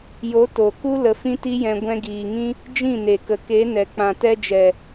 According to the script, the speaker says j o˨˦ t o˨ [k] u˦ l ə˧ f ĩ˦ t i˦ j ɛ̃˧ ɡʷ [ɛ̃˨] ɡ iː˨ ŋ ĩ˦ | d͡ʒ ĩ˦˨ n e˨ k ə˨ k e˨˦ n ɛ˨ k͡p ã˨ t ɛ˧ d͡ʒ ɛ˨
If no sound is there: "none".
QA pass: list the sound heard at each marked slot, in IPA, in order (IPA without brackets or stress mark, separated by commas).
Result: k, ɛ̃˧